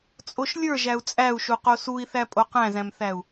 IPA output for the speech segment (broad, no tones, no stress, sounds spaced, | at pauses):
t͡sʼ o ʃ lʲ ə˞ ʒ æ u̯ t͡sʼ æ u̯ ʃ u q o s u i̯ θ æ pʼ o q æ̃ z æ̃ m θ æ u̯